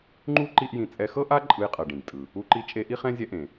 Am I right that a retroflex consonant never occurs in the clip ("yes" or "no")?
no